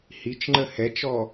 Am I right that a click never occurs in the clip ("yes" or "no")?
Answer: no